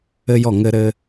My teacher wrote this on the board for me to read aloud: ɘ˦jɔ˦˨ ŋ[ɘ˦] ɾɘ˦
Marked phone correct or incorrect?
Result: correct